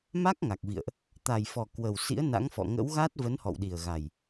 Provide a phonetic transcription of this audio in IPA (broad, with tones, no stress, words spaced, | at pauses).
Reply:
ma˦˥k̚ŋa˨˩k̚vḭ˧˨ə̯ʔ | t̪a˨˩jfɔ˨˩ kwə˨˩wsḭ˧˥ə̯na̰˧˥ŋfɔ̰˧˨ ŋə̰˧˥wɣa˦˥t̚ və˨˦nhɔ̰˧˨wɗi˨˩ə̯ɣa˨˩j